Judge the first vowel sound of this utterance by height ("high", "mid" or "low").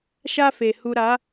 low